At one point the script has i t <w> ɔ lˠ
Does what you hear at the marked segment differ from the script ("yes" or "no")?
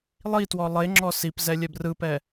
no